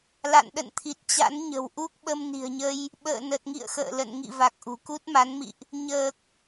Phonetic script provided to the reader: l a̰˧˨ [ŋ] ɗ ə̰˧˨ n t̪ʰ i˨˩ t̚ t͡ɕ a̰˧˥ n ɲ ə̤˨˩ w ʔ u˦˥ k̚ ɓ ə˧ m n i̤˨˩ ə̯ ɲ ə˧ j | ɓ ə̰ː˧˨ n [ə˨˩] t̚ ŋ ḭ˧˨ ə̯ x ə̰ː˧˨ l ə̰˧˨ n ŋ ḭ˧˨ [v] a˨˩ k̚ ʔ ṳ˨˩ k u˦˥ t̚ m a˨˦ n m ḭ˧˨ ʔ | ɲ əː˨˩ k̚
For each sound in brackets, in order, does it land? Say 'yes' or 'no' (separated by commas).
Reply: no, yes, yes